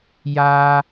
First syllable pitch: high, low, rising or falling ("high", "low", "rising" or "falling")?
high